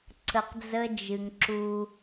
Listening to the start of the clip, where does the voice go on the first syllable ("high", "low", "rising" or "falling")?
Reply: low